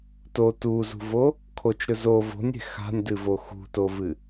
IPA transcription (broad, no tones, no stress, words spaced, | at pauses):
to tuzṳvo | kʰot͡ʃɾɵ zo vo̤nʲe̤ xa̤nʲdɨvo xṳtovɨ